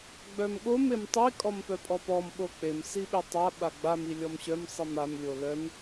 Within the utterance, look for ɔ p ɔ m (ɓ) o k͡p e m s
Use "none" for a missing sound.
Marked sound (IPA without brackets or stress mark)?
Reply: ɓ